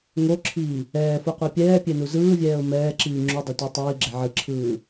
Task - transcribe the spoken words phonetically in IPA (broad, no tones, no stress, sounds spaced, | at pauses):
ŋ o ǁʰ iː | ɛː f u qʷ ɛ pʲ ɛː pʲ e n u z ɯː vʲ ɛː ʊ̯ m ɛː ǁ iː ŋ͡ǁ u dˤ o tʷ a tˤ iː ɡ͡ǁ e ʕ ɯ ǁʰ ɯː